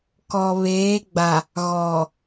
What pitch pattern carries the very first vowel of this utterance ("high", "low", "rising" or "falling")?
low